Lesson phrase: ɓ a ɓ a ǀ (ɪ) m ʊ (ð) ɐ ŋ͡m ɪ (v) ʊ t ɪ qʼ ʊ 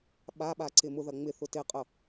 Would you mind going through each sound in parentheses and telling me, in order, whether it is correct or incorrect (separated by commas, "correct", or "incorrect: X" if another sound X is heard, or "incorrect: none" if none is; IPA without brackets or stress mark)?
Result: correct, correct, incorrect: θ